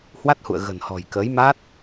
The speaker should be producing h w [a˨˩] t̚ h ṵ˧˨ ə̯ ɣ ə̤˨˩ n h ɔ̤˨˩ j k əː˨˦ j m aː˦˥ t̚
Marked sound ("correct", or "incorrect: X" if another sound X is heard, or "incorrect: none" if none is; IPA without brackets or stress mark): incorrect: a˦˥